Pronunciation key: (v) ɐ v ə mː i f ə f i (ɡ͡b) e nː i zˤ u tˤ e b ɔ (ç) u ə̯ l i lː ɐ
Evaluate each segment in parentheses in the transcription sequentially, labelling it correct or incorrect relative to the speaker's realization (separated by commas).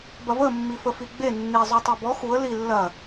incorrect, correct, incorrect